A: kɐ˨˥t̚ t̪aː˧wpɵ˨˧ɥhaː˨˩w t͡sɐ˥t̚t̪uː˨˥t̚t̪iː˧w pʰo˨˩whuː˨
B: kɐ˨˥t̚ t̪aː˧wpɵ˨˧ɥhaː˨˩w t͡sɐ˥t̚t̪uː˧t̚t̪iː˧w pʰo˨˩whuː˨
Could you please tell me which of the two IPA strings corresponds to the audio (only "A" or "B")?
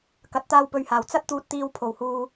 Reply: B